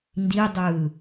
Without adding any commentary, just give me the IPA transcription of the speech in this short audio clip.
n d i dˤ ɯː

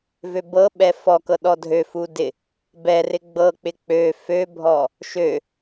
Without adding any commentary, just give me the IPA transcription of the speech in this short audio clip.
v ø b ɤ ɓ ɛ f ɔ k ɤ ɗ ɔ dʱ ø f u d ɪ | b ɛ r ɪ ɡ͡b ɤ k͡p ɪ k͡p ø f ø bʱ ɔ | ʃ ø

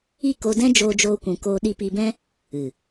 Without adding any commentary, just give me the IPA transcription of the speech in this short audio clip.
i˦˨ k o˧ d ɛ̃˦ d͡ʒ oː˦ d͡ʒ oː˦ kʷ ũ˧ k oː˧ ɗ i˧ p i˧ b ɛ̃˦ | ɨ˨

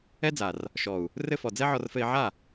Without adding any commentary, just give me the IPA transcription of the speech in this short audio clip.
ɛ˦ d͡z a˨ r | ʃ ɔ˨ u̯ | r ɘ˧ f ɔ˨ d͡z ɛ˦ ʕ ɔ˧ r f ɘ˧ i̯ ʕ a˦˨

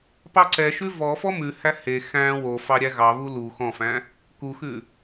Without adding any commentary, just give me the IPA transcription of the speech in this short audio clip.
p ɑ ǀ ɛ ʃ ʉ v ɔ f ɔ m ʉ h æ h e x æ̃ w o f ɑ ɾʲ æ ɣ ɑ β u l u x ɔ̃ f æ̃ | k u x ʉ

